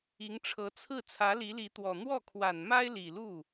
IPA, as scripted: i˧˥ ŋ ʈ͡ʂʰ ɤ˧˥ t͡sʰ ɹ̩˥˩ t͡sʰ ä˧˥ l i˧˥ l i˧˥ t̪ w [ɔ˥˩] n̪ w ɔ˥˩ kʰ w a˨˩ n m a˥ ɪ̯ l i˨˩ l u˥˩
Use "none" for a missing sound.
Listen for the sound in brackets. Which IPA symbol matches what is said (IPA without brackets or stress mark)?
ɔ˨˩